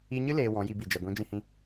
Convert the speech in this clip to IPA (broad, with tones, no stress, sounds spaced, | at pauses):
i˧ ɲ ɨ˦ l eː˨ w ɔ̃˨˦ j i˧ b i˨ d͡ʒ ɛ˨ ɡʷ ĩ˨˦ d͡ʒ ĩ˧ h ĩ˧